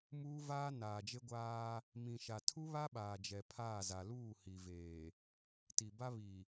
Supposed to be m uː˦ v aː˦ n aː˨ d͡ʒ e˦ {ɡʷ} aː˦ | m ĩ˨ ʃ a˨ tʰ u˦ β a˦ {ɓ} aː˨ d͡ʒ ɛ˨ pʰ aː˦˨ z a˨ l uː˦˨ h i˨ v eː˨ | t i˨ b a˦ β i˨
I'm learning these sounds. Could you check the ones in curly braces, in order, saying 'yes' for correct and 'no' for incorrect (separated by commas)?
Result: yes, yes